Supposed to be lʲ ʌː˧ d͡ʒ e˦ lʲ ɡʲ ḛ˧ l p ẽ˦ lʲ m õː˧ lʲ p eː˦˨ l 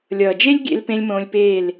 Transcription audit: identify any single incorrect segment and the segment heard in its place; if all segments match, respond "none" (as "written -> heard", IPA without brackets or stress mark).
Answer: ʌː˧ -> ʌː˨